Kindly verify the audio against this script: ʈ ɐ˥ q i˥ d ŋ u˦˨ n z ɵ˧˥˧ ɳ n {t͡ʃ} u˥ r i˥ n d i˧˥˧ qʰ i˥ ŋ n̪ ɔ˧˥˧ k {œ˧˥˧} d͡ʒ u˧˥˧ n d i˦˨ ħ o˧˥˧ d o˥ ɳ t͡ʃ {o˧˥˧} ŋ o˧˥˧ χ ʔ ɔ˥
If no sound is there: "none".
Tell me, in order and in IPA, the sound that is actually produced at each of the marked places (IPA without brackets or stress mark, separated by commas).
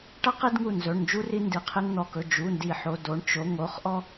d͡ʒ, ɵ˧˥˧, o˧˥˧